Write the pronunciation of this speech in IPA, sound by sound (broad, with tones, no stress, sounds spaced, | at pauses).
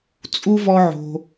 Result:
t͡sʼ u˥ v ɔ˦ ʕ o̤˨